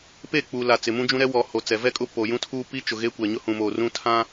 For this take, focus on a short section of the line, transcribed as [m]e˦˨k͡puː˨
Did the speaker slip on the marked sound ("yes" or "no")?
yes